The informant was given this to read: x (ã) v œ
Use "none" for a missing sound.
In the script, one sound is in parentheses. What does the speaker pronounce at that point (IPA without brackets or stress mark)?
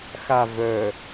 a